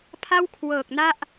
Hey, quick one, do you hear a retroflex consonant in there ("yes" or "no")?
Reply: no